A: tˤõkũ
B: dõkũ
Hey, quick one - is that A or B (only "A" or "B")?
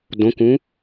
B